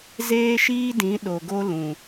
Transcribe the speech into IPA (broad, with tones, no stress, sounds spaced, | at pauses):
z eː˦ ʃ iː˦ d ĩ˨˦ ɗ o˨ ɡ o˧ l ũ˨